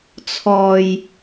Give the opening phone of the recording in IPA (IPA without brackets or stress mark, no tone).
t͡sʰ